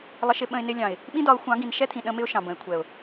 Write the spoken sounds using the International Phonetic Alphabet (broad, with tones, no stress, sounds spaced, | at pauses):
lˠ ə˧ ʃ ɪ˧ ɓ ə̃˧ ɪ̯ n ɪ˧ lʲ ɑ̃˨ ɪ̯ | ɓ ĩ˦ d ɒ˨˦ ʊ̯ xʷ ɑ̃˨˦ ɡ ĩ˨ n ʃ ɛ˦ t̪ʰ ĩ˨ ɗ ə̃˦ m ɪ˦ ʊ̯ ʃ ɑ̃˨ b ə̃˨ ɪ̯ kʷʰ ɛ˨ ʊ̯